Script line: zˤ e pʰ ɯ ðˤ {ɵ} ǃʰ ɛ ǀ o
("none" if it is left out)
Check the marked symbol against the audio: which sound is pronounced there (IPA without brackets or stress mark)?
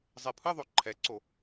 o